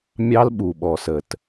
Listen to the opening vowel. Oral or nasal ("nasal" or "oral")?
oral